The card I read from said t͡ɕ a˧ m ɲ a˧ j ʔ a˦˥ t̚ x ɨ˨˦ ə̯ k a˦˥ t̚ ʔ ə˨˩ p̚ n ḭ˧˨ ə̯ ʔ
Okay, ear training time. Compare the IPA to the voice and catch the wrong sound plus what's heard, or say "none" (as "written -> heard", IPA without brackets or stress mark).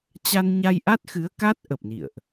m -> n